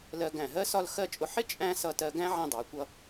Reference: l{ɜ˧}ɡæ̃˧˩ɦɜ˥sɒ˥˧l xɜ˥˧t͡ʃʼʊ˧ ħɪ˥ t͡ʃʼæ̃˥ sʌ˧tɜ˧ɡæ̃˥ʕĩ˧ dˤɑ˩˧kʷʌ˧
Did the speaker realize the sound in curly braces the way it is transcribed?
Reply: yes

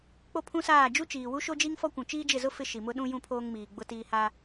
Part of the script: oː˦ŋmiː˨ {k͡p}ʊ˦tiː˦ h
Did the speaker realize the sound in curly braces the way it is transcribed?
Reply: no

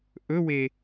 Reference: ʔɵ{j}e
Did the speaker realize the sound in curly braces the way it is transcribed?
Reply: no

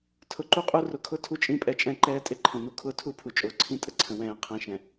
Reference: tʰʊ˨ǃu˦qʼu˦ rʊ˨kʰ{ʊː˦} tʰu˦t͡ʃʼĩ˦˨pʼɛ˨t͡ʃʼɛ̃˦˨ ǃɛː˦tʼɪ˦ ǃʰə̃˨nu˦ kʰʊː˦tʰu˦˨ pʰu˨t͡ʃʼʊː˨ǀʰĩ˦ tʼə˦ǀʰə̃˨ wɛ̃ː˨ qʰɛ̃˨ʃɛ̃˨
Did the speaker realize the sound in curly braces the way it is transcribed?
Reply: no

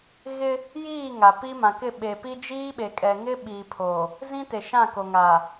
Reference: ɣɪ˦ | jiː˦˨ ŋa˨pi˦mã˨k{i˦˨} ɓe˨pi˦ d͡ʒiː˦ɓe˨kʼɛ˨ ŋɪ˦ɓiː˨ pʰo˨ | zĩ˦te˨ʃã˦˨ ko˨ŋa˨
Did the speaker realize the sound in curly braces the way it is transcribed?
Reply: no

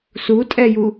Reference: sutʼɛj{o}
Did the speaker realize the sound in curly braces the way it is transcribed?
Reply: no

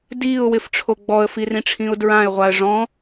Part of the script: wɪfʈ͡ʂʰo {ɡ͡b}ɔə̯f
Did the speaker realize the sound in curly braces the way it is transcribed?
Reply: yes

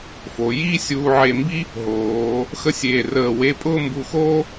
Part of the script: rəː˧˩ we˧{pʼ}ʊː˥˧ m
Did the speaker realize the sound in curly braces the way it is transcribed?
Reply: yes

